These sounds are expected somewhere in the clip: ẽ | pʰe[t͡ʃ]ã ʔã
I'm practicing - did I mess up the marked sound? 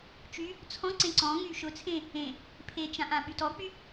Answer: no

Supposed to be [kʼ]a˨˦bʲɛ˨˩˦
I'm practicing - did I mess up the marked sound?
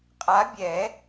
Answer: yes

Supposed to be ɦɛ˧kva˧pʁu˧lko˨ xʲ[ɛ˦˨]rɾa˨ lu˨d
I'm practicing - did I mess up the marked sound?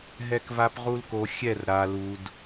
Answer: no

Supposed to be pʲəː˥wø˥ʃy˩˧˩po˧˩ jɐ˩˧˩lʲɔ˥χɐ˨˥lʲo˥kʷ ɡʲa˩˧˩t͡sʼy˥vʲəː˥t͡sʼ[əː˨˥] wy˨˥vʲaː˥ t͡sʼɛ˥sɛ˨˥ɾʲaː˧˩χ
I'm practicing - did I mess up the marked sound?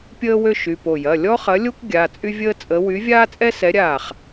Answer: yes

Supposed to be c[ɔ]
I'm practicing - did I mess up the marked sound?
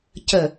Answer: yes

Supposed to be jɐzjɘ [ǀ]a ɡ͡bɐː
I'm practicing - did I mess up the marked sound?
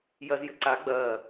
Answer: no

